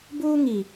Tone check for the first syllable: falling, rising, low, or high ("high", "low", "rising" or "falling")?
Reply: high